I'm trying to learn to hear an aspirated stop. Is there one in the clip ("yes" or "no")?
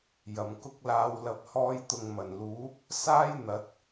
no